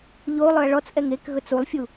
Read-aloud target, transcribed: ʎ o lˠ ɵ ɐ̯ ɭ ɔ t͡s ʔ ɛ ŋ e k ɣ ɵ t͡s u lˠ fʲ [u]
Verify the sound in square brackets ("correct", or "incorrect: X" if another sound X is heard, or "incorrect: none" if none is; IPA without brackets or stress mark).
correct